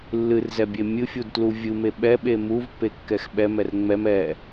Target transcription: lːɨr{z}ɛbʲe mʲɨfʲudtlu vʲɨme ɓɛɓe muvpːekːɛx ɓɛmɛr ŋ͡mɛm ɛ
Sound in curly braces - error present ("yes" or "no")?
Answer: no